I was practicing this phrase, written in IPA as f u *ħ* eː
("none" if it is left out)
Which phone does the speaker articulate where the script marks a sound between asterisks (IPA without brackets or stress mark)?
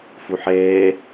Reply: ħ